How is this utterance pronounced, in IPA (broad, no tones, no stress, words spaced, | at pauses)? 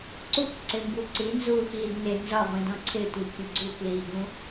ǀukǀɪmbu ǀinzuːxiːd nɪ nzɒʁʷĩdɔ̃ ǀʰɪtʷikʲu ɡ͡ǀukliːɡũ